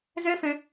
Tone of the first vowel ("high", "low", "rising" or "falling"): high